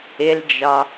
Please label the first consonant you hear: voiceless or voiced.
voiced